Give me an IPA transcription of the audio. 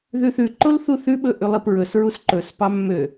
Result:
ð ʉ θ ʉ ǃ o l θ u θ ʉ ɓ ɵ ʔ ʉ lˠ i p ɹ ɵ s ɹ u s ǃ ɵ s p ɑ mː ø

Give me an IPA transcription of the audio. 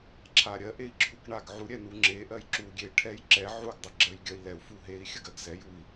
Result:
ǁʰ a ɾʲ ɜ ʔ e i̯ ǁʰ u k ɳ a ɡ ʕ u ɾʲ ɛ n u ŋ͡ǁ e ʔ ɜ j ǁ u ɡʲ e ʈʰ ɛ j ǁ ɛ ʕ u ɡ dˤ ə ɡ͡ǁ ɜ j ɡʲ ɜ i̯ l ɛ u̯ f u ɦ e i̯ xʲ ə ɡ ɜ ɡ s ɛ j u i̯

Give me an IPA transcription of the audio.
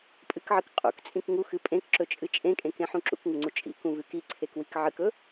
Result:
pʼ ɨ k ʕ ɨ k qʼ ṵ k t͡sʼ ĩ k ŋ u x ɨ pʼ ẽ k ǁ ɵ t͡ʃʼ ɨ t͡ʃʼ ẽ kʼ ẽ k ẽ ħ ũ ǁ ṵ k ŋ u ŋ͡ǀ u t͡ʃʼ ḭ k ũ v ʉ k i ǀʰ e k w i k ʕ ɨ k ɵ

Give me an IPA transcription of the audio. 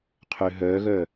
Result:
qʰ ø ɦ œː ɣ œ

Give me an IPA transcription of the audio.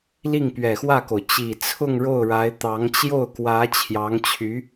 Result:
l i˥˩ ŋ p ɥ ɛ˨˩ x w ä˥˩ k o˩ ʊ̯ t͡ɕ i˨˩ t͡sʰ ʊ˥˧ ŋ ɻ o˥˩ ʊ̯ ɻ a˧˥ ɪ̯ t̪ ɑ˧˥ ŋ t͡ɕ j o˥˩ ʊ̯ k w ä˧˥ t͡ɕʰ j ɑ˧˥ ŋ t͡ɕʰ y˧˥

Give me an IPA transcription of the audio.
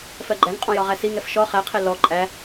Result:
f ɜ ɡ͡ǃ æ ŋ qʼ ɔ̃ j ɒ ʁ æ s i ŋ ɛ f ʃ ɔ χ æ qʰ ɛ l ɔ ǃʼ æ

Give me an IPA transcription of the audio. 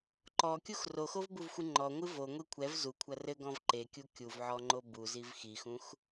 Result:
ǃ ɔ kʲ u x r o x o v b u v xʷ ɨ ŋ͡ǃ ɔ ŋʷ ɨ v o ŋʷ e kʷʰ ɛ v z u kʷʰ ɐ r ɘ ɡ ɔ̃ v ǃ e kʲ u kʲ u v ʕ ɔ ŋ͡ǃ o b u z i v x i x ũ x

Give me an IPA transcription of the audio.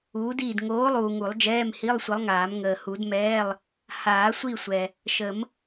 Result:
uː˨˥ d iː˦˨ d ŋ oː˨˥ lˠ uː˨ ŋ u˨˩˦ lˠ d͡ʒ ɛː˧˥˧ m h i˧˥˧ lˠ sʷ ə˨˥ lˠ ŋ aː˨˩˦ m ŋ əː˨ h u˨˩˦ d m ɛː˧˥˧ lˠ | h aː˨˩˦ sʷ i˦˨ sʷ ɛ˨ | ʃ ə˨˩˦ m

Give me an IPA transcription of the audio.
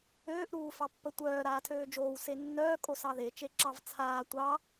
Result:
øː ʔ ɾ uː f ɑ pː ə tʷ œː ɾ aː tʰ øː d͡ʒ oː w s e nː œː kʼ o s ɑ ð e t͡ʃ e ǁ ɑ v t͡sʰ aː tʷ ɑ

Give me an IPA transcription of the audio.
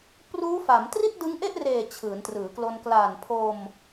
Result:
p r uː˦˥ f a˩˦ m t r i˥˩ t̚ d ɯ˦˥ ŋ ʔ e˥˩ ʔ r eː˨˩ t͡ɕʰ ɯː˩˦ n t r ɯː˩˦ k l o˧ n k l aː˨˩ n pʰ o˧ m

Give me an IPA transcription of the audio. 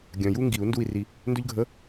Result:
ɡʲ œ̃˨ j u˥ ŋ ɡ i˨˩˦ u̯ n d u˦˨ i̯ r i˨ | n d ɵ˥ ʎ ɡʱ ə˧˥˧

